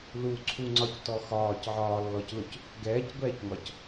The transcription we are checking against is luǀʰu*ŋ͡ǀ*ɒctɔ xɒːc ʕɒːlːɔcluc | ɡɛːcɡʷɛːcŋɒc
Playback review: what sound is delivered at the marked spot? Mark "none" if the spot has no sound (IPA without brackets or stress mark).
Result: ŋ͡ǀ